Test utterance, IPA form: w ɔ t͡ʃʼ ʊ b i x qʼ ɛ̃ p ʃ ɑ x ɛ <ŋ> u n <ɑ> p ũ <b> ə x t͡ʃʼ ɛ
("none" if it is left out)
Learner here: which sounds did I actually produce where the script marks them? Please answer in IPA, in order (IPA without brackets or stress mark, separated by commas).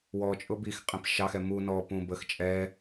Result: m, ɔ, b